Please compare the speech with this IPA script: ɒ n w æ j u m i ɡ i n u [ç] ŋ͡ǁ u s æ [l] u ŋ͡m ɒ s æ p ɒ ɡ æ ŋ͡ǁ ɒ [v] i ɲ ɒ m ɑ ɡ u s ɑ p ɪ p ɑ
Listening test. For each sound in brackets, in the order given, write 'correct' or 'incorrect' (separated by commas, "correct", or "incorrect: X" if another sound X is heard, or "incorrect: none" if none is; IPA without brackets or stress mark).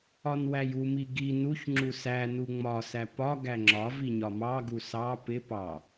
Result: correct, incorrect: n, correct